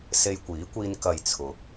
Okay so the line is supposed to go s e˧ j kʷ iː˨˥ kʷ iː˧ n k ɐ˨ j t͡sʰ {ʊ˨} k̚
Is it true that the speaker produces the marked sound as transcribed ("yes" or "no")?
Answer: no